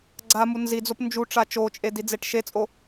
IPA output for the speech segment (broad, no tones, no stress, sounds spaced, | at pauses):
ɡ͡ǀ a m u n z i d͡z o p n d͡ʒ u ʈ͡ʂ a t͡ʃ o t͡ʃʼ e d i d͡z e ʈ ʃ e t͡sʼ o